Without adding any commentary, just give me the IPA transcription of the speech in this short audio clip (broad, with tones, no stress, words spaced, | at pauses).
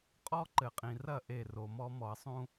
qʼɔ˦ ǃɘ˨qʼĩ˨rɐ˦˨ ʔe˦˨ro˨mɔ˦ mɔ˨ɐ̯sˤũ˦